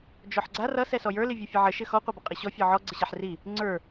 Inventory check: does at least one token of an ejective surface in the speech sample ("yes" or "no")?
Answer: yes